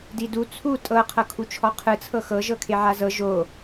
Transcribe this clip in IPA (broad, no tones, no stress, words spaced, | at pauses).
didu t͡sʰu tʼɤ qʰɤkʰut͡ʃʰɔqʰɯ t͡sʰɤxɤ ʒɤkʰeʕazɤ ʒo